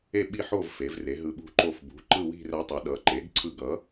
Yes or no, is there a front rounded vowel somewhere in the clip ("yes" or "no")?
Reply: no